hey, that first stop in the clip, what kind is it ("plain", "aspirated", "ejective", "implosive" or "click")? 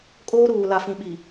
ejective